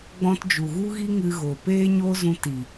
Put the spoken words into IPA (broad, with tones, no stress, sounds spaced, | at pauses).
ɡ͡b ɔ̃˧ t d͡ʒ u˨ ɣ u˦ ɣ i˦ ŋ ɨ˧ ɣ o˨ p eː˦ ɲ o˦ z ũ˧ t i˨